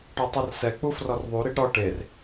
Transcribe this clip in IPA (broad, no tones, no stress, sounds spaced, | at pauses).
ʈ ɔ tˤ ɐ r s ɛ k͡p u f r ɔ r ðˤ u ɾ i ɖ ɾ ɔ ʈ e r